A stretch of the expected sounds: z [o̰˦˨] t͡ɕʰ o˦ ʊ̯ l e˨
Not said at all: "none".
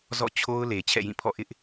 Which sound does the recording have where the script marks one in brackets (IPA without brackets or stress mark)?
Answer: ɔ̰˦˨